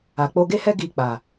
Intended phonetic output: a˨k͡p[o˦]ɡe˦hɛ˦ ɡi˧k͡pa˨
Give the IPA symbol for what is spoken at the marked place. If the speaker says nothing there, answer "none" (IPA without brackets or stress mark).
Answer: o˧